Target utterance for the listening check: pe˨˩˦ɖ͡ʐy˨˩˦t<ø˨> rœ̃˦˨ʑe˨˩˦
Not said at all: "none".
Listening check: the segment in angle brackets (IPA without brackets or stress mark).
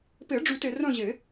e˨